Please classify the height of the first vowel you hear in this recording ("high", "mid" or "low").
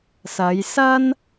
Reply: low